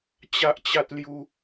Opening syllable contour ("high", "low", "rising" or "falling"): high